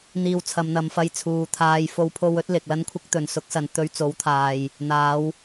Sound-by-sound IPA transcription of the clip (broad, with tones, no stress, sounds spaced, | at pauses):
n̪ iː˧ w t͡sʰ ɐ˨˧ m n̪ ɐ˨˧ m f ɐ˧ j t͡sʰ uː˨˧ t̪ʰ aː˧ j f o˧ w pʰ o˧ w ɵ˨˥ t̚ l ɪ˨ k̚ l ɐ˥ n kʷʰ ɪ˥ k̚ t̪ ɵ˨ n s ʊ˨˥ k̚ s ɐ˨ n t̪ ɵ˨˧ ɥ t͡s o˨˥ w t̪ʰ aː˨ j | n̪ aː˨˧ w